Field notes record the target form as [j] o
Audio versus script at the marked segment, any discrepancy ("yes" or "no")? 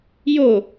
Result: no